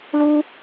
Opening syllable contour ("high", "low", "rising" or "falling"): high